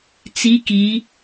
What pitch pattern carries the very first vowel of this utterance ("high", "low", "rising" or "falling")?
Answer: rising